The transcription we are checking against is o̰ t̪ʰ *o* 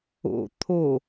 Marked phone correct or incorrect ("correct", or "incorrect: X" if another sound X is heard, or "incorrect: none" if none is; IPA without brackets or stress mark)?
correct